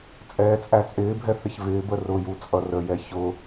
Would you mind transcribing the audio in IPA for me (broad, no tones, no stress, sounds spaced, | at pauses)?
t͡sʼ ɛː t͡sʼ æ t͡sʼ ɪː bʱ ɛ θ ɪ ç v ɪː b ə r ʊ j u t͡sʼ ʌ r ə j ɛ ç ʊ